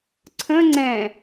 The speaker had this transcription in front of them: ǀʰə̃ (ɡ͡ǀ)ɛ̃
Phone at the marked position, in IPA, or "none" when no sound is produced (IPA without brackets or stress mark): ŋ͡ǀ